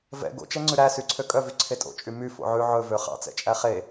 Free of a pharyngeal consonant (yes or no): no